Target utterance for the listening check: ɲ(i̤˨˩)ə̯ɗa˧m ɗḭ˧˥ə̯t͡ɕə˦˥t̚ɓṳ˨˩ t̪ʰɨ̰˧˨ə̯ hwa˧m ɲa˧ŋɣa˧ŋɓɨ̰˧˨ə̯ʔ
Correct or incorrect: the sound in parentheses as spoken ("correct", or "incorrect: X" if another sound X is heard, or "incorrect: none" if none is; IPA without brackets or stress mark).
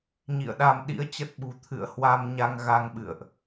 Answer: incorrect: ḭ˧˨